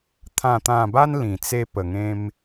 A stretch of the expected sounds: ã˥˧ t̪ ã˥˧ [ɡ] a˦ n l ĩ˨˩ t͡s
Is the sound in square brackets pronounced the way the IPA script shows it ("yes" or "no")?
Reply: no